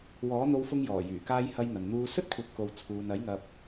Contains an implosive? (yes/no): no